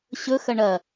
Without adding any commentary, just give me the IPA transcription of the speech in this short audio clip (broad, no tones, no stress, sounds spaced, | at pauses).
ɕ ɵ x ɐ ɳ ɐ